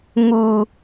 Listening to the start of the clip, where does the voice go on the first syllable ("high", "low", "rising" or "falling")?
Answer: low